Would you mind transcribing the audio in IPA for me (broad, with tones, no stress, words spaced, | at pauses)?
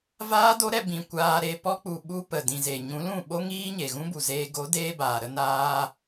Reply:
vaː˦do˦ɾɛ˧ bĩ˨ kʷaː˧ɾe˧ pɔ˦k͡pu˨ ɓu˦pə˨ dĩ˨ ze˨ɲũ˨˦lũ˦˨ ɓo˧ŋiː˧ ɲe˨ɣũ˦bu˨zeː˧ ɡo˨˦deː˧ baː˨ ɾə˧naː˧